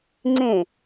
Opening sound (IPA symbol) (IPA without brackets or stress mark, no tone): ŋ͡ǀ